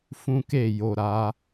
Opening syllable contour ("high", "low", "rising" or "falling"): high